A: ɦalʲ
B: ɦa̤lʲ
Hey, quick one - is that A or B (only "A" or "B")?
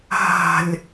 B